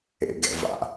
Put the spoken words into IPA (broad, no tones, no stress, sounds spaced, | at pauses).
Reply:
ḛ ɡ ɛ̰ v a̰